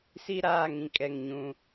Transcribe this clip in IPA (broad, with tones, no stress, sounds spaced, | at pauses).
s i˦ ɾ aː˦˨ ŋ ĩ˦ kʼ ɛ˦˨ ŋ ɲ ũ˦